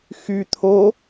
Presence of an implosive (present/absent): absent